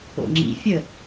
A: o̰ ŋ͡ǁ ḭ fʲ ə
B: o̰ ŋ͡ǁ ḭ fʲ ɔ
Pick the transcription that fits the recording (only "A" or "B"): A